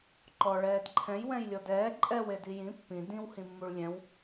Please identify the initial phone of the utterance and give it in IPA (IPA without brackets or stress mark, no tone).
ǃ